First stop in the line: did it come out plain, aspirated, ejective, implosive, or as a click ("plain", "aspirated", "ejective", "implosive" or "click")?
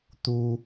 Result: plain